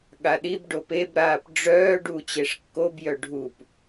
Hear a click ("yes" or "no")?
no